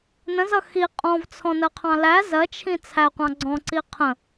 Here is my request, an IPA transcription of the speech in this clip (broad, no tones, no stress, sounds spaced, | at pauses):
n ə̃ z ʌ x i qʼ ɔ̃ v t͡sʰ ɔ̃ n ɜ qʰ ɑ̃ l æ z ɜ t͡ʃʰ ĩ t͡sʰ æ qʷ ɑ̃ ɡ͡ǀ ɔ̃ ǀ i qʰ ə̃